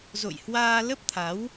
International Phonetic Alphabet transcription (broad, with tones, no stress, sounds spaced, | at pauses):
z o̰˧˨ j h w aː˧ l ə˦˥ p̚ t̪ʰ a˨˦ w